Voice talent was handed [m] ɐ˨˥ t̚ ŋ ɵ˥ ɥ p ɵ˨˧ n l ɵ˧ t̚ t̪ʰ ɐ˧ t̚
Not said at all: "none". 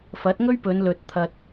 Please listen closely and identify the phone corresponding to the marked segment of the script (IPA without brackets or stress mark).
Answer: f